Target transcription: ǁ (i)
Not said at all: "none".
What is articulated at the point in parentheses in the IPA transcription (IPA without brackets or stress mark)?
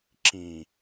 ĩ